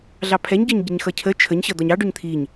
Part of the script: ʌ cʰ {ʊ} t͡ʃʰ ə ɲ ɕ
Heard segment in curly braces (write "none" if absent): ə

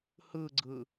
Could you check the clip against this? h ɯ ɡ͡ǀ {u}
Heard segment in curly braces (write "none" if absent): ɯ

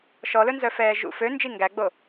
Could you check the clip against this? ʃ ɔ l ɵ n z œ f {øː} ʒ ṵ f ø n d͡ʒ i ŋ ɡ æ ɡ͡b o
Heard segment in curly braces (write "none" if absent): ɛː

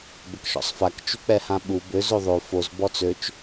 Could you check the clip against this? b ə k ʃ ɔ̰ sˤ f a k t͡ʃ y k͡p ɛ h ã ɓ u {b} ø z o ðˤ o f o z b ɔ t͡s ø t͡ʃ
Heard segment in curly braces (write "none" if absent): b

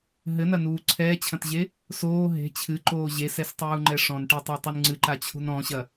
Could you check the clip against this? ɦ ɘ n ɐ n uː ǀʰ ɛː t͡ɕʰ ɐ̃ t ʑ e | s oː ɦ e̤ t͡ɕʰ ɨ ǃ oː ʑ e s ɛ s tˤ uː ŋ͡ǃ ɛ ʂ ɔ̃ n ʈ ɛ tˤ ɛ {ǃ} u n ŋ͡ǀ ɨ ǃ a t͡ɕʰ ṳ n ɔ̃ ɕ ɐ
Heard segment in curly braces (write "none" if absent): tˤ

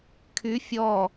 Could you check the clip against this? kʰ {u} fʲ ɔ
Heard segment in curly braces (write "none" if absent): y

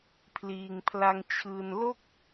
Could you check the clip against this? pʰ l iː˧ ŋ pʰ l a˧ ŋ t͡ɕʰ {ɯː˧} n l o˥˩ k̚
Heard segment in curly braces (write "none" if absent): ɯː˧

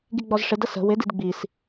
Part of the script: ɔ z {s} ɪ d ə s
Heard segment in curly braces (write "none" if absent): ʂ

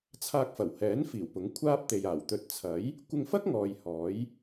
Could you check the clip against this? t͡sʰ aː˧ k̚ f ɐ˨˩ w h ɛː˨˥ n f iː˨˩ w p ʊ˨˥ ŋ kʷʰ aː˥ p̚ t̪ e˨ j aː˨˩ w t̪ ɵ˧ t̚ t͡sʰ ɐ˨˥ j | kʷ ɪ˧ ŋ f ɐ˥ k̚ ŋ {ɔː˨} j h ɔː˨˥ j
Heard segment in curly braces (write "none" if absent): ɔː˨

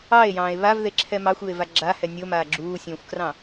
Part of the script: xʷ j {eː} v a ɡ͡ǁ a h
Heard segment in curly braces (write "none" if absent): e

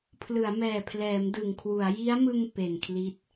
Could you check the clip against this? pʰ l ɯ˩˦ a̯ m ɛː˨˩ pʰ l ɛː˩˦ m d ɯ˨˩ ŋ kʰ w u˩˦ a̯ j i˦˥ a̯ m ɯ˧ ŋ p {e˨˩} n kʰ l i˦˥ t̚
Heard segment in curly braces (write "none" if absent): e˨˩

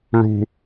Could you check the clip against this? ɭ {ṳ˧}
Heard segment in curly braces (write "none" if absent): ṳ˧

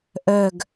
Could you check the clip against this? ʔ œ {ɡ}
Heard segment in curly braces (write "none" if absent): ɡ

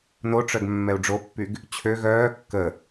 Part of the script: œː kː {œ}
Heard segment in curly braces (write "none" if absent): ə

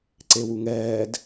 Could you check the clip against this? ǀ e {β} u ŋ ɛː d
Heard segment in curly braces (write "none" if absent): w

